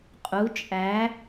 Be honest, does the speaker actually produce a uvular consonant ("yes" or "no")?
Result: yes